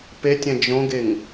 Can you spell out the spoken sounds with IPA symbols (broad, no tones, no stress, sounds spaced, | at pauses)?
p e tʲ ɛ̃ d͡ʒ õ ɡ e ŋ